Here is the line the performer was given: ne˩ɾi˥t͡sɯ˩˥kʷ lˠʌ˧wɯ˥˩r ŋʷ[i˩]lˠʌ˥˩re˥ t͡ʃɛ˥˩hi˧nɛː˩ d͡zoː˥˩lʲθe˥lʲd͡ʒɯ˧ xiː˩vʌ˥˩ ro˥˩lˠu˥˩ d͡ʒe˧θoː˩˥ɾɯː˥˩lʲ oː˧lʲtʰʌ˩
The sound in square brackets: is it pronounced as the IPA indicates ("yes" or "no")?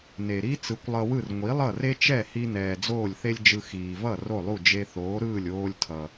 no